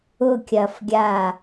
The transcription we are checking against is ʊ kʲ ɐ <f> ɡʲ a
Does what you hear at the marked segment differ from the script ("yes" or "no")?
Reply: no